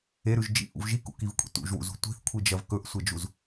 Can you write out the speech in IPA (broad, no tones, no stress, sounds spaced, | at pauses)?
e ɾ ʉ ʒ d͡ʒ ḭ ʔ ṵ v ʒ i k ṵ k i v kʷʼ ḭ t ṵ ʒ w ṵ z ṳ tʷ i̤ θ kʷʰ i d͡ʒ ɐ v k ɵ ʔ sʷ e d͡ʒ u z